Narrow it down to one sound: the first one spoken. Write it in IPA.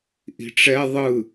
ʔ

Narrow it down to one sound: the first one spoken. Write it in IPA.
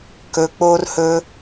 k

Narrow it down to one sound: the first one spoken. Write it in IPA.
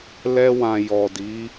l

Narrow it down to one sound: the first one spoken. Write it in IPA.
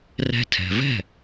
r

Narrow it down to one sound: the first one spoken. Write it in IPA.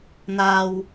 n̪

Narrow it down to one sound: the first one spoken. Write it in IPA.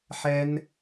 ħ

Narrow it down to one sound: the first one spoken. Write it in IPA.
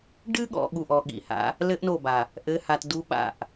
ɖ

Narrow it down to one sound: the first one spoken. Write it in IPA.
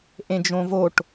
ʔ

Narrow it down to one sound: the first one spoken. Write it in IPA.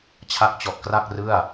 t͡ɕʰ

